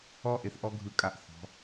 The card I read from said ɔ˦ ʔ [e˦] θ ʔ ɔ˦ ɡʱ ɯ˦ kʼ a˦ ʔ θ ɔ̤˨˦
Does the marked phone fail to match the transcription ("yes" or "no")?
yes